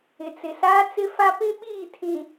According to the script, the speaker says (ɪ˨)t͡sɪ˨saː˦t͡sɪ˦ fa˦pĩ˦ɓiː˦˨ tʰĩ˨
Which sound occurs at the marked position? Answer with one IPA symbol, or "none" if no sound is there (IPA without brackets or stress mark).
ɪ˨